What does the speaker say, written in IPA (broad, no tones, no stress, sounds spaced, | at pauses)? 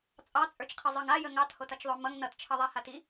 t͡sʼ ɑ t͡sʼ ə˞ t͡ʃ qʰ ə zˤ ə˞ ŋ a j ə ŋ ɑ t h o t ʌ t͡ʃ ðˤ o m ʌ ŋ n ʌ t t͡ʃʰ ʌ ðˤ a h a t i